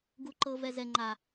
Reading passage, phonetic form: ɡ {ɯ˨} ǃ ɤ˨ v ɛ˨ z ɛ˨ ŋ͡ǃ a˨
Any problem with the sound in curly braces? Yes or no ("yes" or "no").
yes